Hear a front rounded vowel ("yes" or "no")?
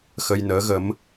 no